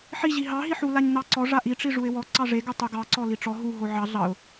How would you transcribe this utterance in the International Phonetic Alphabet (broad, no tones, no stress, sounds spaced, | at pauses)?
ħ i ʑ i ɦ ɑ ɦ i ħ u l a ɲ n ɑ ǀ ɔ ʐ a ʔ i ʈ͡ʂ i ʐ u ɪ̯ w ɔ ǀ ɑ ʐ e ɡ o tˤ u ɡ ɑ ǀ ɔ l i ʈ͡ʂ ɔ ɦ u ɦ o ʕ ɑ ɮ ɑ ʊ̯